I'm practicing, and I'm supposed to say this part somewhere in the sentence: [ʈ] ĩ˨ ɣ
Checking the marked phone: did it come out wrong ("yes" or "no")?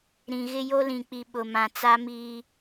yes